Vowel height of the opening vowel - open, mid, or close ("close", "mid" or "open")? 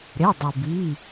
mid